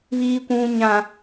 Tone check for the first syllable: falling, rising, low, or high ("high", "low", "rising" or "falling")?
high